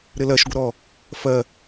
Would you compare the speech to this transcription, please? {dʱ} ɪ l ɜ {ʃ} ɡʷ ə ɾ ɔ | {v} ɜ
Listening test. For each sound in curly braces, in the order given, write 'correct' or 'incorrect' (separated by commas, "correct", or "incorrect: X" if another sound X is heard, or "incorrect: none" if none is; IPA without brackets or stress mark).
incorrect: ɾ, correct, incorrect: f